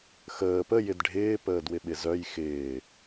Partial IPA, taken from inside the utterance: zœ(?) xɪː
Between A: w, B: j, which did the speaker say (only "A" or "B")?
B